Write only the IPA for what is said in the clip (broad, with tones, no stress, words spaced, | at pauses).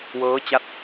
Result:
wɤː˦˥t͡ɕa˦˥t̚